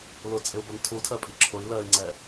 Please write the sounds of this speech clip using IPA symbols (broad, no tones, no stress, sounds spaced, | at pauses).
l ʊ t͡sʼ ɪ u̯ b ʌ n tʰ u tʰ ɜ pʼ i ǁʰ ʊ i̯ l ɜ i̯ ŋ͡ǀ ɛ